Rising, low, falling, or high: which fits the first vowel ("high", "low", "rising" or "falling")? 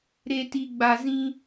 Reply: low